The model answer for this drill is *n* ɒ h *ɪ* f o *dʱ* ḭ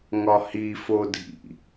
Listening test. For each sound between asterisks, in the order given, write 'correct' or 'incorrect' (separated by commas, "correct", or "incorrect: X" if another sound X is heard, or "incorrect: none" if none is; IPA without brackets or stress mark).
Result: incorrect: ŋ, incorrect: i, correct